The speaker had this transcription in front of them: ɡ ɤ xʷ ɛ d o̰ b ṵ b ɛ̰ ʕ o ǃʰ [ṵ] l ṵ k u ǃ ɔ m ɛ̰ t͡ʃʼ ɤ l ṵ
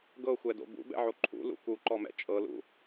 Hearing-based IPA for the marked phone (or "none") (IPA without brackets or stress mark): ṵ